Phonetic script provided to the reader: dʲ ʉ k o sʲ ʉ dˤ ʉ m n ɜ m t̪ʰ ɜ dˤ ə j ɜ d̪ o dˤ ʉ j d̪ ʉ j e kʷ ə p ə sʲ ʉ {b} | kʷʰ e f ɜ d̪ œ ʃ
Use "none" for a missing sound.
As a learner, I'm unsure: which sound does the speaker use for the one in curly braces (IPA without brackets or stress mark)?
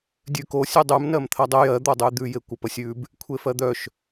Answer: b